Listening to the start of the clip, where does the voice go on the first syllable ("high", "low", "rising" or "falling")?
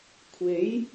rising